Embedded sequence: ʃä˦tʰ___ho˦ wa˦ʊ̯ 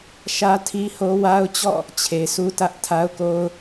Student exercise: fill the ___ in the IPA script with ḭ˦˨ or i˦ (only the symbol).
i˦